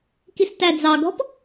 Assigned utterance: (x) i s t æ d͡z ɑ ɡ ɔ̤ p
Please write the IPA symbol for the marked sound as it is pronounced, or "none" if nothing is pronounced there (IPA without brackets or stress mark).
k